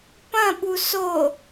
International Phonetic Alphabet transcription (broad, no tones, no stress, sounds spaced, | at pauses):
p ɐ̃ ɓ u s o